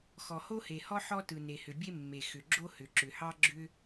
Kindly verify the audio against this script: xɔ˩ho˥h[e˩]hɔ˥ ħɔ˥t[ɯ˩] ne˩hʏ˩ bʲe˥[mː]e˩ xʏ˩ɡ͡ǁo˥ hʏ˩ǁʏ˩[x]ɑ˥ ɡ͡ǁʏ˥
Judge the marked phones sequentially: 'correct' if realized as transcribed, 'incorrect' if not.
correct, correct, correct, incorrect

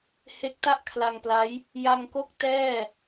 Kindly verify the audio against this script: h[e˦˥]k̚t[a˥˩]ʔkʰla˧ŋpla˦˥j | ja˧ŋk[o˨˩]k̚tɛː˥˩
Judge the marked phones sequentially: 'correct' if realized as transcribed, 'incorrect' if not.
correct, correct, incorrect

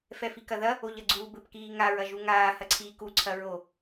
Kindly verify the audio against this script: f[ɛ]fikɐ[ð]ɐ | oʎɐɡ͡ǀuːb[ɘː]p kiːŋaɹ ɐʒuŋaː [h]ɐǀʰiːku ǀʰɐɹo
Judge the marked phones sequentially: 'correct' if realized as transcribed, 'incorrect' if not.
correct, correct, incorrect, correct

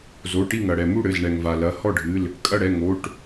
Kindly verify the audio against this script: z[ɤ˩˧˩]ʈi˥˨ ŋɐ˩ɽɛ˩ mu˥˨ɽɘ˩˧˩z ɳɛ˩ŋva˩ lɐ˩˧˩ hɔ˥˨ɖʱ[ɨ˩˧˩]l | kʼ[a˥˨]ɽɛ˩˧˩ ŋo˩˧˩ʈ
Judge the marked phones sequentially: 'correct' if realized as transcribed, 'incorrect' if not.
incorrect, correct, incorrect

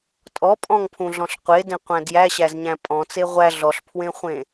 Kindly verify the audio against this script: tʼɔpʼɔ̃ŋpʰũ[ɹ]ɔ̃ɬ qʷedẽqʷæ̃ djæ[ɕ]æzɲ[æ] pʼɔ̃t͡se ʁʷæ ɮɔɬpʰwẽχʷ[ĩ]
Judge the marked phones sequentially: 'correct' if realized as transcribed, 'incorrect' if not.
incorrect, correct, incorrect, incorrect

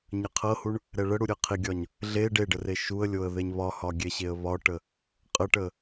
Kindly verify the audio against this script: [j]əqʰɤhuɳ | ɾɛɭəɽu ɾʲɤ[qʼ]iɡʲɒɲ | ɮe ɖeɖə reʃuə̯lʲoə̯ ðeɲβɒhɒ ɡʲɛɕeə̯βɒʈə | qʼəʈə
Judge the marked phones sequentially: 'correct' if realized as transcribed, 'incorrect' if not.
incorrect, incorrect

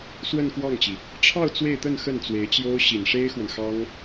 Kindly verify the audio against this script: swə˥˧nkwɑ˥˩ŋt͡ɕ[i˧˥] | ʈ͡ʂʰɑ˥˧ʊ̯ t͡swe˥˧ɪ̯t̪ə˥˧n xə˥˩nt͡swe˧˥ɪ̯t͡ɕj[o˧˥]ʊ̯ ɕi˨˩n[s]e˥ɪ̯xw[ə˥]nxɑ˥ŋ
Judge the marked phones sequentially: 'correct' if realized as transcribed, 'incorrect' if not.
incorrect, incorrect, incorrect, incorrect

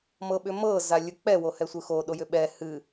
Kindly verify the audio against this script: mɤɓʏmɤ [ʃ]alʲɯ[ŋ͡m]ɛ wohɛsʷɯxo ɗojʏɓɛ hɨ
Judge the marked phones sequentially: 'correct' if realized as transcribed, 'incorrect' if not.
incorrect, incorrect

